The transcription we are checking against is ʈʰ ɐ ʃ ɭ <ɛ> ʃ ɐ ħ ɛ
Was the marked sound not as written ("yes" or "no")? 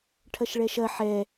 no